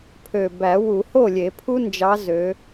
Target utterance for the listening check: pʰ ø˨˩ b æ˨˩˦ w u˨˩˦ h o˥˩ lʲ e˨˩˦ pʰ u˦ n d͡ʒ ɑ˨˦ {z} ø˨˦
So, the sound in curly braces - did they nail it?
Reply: yes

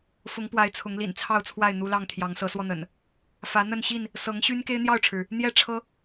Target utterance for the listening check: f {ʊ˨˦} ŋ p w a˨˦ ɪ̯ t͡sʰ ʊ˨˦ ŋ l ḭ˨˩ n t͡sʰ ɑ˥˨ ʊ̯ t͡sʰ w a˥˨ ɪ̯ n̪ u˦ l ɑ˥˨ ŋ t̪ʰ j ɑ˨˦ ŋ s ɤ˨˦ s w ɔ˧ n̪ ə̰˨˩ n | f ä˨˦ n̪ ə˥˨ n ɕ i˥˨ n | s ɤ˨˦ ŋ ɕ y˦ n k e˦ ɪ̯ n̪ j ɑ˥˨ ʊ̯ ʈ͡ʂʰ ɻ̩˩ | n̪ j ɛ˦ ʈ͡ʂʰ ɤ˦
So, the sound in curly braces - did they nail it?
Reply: yes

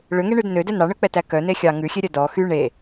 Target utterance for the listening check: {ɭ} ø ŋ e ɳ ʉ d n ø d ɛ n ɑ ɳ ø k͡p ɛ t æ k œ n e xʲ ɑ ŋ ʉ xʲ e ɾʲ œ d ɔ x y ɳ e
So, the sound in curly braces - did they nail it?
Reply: yes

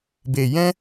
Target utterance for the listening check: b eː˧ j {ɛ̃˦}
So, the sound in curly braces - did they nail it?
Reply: yes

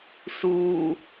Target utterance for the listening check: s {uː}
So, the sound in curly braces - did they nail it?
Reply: yes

